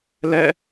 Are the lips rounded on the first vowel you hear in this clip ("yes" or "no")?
no